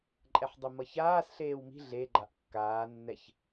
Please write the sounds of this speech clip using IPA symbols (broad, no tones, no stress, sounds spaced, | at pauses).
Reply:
ǃʼ ɛ ħ dˤ u m ʌ ç aː s ɬ eː w m i̤ ɮ e ɡ͡ǃ a ʔ kː aː nː ɛ ç